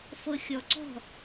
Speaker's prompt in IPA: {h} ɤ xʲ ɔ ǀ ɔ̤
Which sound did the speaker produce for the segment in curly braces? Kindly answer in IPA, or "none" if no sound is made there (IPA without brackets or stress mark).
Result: f